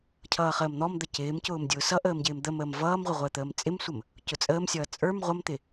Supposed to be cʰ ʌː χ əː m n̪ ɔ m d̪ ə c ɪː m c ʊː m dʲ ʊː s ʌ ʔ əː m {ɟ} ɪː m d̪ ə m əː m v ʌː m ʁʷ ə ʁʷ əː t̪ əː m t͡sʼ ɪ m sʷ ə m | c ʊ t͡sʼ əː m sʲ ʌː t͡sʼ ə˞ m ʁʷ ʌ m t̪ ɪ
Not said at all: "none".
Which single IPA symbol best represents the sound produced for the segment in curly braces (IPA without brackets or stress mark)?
ɟ